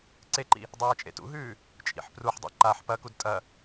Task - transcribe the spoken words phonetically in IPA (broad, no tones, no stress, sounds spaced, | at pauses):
ǀ e ǃ ḭ | dˤ eː t͡ʃʼ ḛ t ṵ ɦ ʉː | t͡ʃʼ ḭ ħ p r u ħ dˤ ḛ ǃ a ħ p ɐ k u d tʼ ɐ